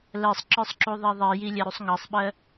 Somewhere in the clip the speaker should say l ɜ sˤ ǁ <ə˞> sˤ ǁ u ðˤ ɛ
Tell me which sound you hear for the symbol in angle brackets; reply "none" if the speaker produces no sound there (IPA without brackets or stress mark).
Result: ə˞